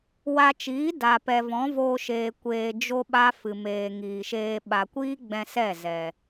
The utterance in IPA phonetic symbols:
w a˧ t͡ʃ iː˨˦ d a˨ p ɛ˨ v ɔ̃˨˦ v oː˧ ʃ eː˨ kʷ eː˨ d͡ʒ o˦ ɓ a˦ f ɨ˨ m eː˨ ŋ iː˨ ʃ eː˧ ɓ a˨ kʷ iː˦ ɡ͡b ɛ̃˧ s ɛ˦˨ z ɛ˨

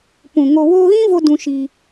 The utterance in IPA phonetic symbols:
p ũ˨ ŋ o˨ w oː˧ ɣ ĩ˦ v o˧ d ũ˧ ʃ i˧

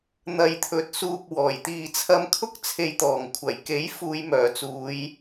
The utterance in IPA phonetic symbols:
n̪ ɐ˨ j t̪ʰ ɵ˨˥ t̚ s uː˨ p̚ w ɔː˨˩ j t̪ iː˨ t͡sʰ ɐ˧ m kʰ ʊ˥ k̚ t͡sʰ e˨ j t̪ ɔː˨˩ ŋ kʷʰ ɐ˨˩ j k e˨˥ j f uː˨˧ j m œː˨˩ t͡s uː˨˧ j

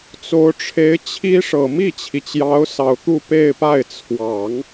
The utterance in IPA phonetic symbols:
t͡s o˧˥ ʊ̯ ʈ͡ʂʰ e˧˥ ɪ̯ t͡ɕʰ i˥ ʂ ɤ˨˩ m i˥˩ t͡ɕʰ i˩ t͡ɕ j ɑ˧˥ ʊ̯ s ɑ˨˩ ʊ̯ t̪ u˥˧ p e˥˧ ɪ̯ p a˥˩ ɪ̯ t͡sʰ w ɑ˨˩˦ ŋ

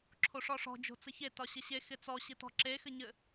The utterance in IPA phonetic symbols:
ǁʰ o ʂ ɔ ʂ ɔ̤ d͡ʒ o̤ t͡s ɘ ç e t ɒ ɕ ɘ ɕ e x ɪ t͡s ɔ ɕ ɨ t ɔ̤ ǁ e x ɘ ɲ ɘ

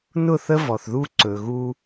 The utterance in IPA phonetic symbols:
n ʊ˦˨ θ ə˦ v ɔ˨ θ ð u˦ ǀ ɵ˨ ɣ u˦

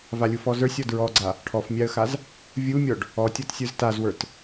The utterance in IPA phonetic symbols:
v a lʲ u f ɔ z ə˞ sʲ ɔ d ɹ ɔ ɡ͡ǀ a | ʈʰ ɔ f mʲ a ə̯ x a z | vʲ u mʲ ɔ ɖ | ɔ tʲ ɔ t sʲ ə˞ z t a z w ə˞ t

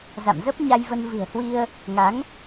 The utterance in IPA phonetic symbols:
z a̰˧˨ m z ə˦˥ p̚ ɲ a˧ j v ə˧ n v ɨ̤˨˩ ə̯ h w i˧ ə̯ | ŋ a˨˦ ŋ

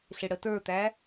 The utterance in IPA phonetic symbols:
ɬ ɪ ɽ ə t ə˞ t̪ æ

